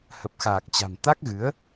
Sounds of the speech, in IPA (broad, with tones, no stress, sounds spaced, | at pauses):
h ə˨˩ p̚ x aː˨˩ k̚ t͡ɕ a̤˨˩ m t̪ a˦˥ k̚ ɣ ɨ˨˦ ə̯